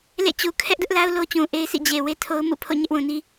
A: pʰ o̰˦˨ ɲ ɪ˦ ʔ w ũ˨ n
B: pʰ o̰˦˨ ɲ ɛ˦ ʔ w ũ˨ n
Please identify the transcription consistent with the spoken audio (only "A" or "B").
B